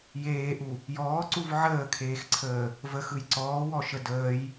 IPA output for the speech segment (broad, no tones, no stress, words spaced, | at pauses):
jeːʔu | jɔːǀuv ʕəːkʰeːxǀʰəː | vəxɯj ǀɔːwɔʃə dəːj